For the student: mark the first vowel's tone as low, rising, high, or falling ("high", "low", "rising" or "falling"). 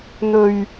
low